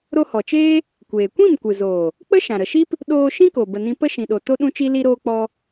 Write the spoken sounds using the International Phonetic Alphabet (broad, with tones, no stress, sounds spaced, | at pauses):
ɾ o˧ h ɔ˨ t͡ʃ eː˦ | kʷ eː˨ kʷ ĩ˦˨ m kʷ ɨ˨ z oː˨ | k͡p ə˦ ʃ ã˨ ɾ ə˨ ʃ i˦ p | ɗ oː˧ ʃ ĩ˦ k o˨ b ə˧ n ĩ˦ p ə˦ ʃ ĩ˨ ɗ o˨ t o˦ ɗ ũ˦ t͡ʃ i˦ l i˧ ɾ oː˧ k͡p ɔ˧